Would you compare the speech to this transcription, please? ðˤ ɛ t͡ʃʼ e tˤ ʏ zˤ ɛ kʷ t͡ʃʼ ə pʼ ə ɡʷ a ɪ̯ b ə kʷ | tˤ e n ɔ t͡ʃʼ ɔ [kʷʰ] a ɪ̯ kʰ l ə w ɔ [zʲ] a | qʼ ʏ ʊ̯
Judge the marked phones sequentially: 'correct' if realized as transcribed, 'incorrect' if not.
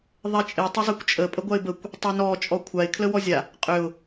correct, correct

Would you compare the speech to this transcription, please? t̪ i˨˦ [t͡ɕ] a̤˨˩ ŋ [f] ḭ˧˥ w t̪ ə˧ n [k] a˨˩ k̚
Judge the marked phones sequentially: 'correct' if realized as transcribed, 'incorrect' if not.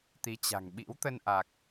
correct, incorrect, incorrect

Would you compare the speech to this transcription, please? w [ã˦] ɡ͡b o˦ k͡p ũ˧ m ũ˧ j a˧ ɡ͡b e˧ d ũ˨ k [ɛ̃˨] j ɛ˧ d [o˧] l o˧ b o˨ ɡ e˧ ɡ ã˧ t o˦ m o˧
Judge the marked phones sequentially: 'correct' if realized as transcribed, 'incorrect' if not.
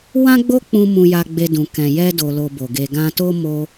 correct, correct, correct

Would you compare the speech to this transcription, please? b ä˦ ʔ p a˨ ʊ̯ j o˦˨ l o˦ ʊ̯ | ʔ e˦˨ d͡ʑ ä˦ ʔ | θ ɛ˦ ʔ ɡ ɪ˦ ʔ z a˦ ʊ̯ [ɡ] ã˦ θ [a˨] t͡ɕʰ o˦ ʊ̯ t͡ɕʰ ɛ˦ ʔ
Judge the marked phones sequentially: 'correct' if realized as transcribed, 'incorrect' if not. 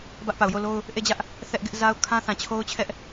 incorrect, incorrect

